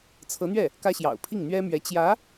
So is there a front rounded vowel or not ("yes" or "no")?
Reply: no